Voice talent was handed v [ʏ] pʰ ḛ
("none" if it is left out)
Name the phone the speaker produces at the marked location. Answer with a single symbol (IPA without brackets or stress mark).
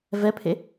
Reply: ɛ